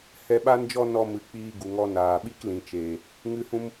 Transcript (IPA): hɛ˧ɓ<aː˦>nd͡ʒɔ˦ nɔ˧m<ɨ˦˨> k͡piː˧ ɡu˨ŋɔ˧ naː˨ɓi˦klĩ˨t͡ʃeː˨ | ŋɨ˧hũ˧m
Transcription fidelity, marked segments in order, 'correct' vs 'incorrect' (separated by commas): incorrect, incorrect